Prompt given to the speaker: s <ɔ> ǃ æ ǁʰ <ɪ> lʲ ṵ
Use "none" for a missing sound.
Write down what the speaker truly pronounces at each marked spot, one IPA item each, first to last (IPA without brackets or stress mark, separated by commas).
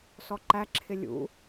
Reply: ɔ, ɪ